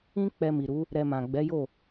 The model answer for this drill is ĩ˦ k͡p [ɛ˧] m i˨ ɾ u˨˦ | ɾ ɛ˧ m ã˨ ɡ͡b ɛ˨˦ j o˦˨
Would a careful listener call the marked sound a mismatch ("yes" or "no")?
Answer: no